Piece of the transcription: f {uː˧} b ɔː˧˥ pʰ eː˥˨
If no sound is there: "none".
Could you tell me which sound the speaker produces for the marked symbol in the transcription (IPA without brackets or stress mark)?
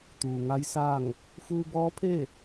uː˧